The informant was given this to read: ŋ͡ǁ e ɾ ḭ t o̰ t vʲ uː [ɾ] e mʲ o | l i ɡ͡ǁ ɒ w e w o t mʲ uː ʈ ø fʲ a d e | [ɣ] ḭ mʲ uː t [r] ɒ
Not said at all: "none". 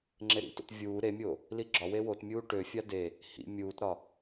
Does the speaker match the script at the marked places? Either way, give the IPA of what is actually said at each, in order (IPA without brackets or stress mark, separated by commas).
ɾ, h, ɾ